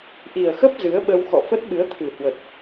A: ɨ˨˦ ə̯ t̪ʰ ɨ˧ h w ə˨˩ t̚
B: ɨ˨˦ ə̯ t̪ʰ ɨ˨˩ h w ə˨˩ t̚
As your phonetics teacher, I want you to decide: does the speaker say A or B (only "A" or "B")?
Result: B